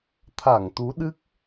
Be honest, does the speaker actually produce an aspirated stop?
yes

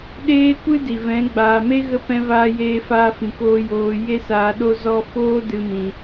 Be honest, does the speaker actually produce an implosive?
yes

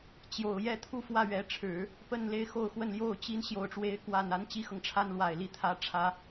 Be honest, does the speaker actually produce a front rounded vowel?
no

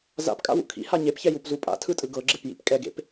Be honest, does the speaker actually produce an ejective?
yes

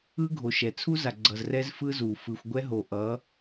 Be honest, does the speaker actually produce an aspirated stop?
yes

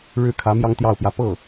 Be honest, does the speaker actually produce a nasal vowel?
no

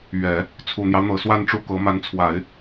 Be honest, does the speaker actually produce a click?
no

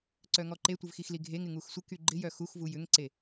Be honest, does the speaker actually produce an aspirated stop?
no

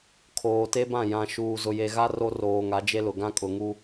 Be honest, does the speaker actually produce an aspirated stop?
yes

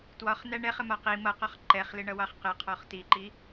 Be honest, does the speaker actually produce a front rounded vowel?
no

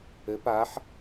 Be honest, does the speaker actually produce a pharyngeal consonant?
yes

